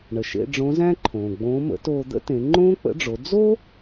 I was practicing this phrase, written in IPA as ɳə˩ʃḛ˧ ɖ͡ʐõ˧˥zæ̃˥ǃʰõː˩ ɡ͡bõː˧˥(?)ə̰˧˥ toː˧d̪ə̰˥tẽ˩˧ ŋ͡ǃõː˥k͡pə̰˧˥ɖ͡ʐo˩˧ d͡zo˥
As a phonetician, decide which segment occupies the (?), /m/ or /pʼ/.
m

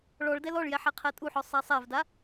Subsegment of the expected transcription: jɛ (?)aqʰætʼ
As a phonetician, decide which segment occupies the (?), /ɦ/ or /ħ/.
ħ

